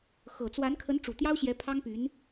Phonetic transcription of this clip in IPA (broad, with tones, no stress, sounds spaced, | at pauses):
x ɤ˨˩ t͡s w a˧˥ n kʰ ə˧˥ n ʈ͡ʂ u˨˩ t̪ j ɑ˥ ʊ̯ ɕ j ɛ˧˥ pʰ ɑ˥ ŋ p y˧˥ n